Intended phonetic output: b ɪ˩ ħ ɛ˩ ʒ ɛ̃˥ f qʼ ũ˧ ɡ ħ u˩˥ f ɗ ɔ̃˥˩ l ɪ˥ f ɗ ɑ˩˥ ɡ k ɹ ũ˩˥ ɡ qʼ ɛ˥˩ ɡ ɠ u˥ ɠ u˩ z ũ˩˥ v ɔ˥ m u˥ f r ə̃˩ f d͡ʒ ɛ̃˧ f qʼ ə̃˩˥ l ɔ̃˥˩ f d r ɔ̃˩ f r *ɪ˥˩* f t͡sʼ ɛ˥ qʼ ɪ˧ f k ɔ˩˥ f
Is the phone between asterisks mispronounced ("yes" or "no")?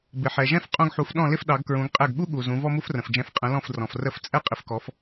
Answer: yes